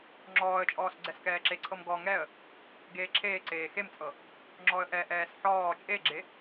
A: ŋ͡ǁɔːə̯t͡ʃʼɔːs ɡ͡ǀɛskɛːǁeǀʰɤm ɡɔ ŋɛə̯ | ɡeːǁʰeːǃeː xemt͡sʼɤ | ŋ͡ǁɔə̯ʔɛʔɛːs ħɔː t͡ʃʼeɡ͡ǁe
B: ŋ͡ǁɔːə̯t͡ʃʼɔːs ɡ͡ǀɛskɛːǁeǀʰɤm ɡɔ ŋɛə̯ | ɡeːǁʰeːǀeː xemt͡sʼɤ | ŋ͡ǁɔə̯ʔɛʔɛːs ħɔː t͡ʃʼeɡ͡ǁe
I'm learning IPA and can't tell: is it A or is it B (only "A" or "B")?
B